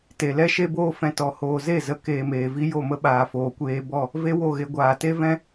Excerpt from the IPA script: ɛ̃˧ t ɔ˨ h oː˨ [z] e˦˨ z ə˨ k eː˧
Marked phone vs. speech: correct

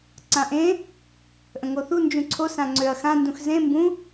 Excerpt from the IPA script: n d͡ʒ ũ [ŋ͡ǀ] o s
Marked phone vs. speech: incorrect: ǀʰ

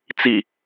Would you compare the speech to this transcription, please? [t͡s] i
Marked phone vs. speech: correct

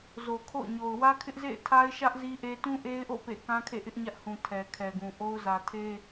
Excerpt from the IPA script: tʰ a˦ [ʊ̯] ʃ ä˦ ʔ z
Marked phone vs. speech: incorrect: ɪ̯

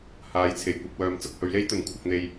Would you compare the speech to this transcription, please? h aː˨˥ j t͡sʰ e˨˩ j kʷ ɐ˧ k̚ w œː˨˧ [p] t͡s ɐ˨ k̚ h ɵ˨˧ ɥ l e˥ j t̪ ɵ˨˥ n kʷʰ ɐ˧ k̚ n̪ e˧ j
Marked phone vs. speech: incorrect: m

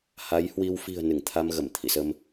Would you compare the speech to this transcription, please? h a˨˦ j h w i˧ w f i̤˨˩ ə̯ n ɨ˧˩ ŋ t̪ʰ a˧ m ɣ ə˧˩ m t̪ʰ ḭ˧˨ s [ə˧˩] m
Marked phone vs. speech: incorrect: ə˧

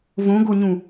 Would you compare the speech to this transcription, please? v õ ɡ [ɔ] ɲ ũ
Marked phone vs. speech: incorrect: o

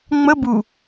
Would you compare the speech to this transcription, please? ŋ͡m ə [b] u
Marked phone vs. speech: correct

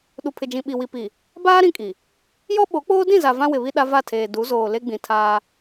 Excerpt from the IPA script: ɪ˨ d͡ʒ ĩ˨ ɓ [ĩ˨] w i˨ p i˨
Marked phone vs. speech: incorrect: i˨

